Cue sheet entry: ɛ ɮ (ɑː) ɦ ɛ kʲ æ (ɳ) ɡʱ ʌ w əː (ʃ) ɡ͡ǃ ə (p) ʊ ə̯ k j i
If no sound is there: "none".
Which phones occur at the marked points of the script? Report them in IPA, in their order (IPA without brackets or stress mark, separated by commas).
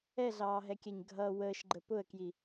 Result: ɑː, ɲ, ʃ, p